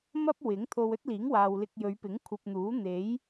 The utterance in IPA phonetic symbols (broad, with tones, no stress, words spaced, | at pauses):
mɐ˥p̚ wɪ˨˥ŋt̪ʰo˧w ɵ˥t̚liː˨˥ŋ waː˨wlɪ˧k̚jɵ˨˧ɥpɪ˨˥ŋ kʷʰɐ˧p̚n̪uː˨˥ n̪e˨˥j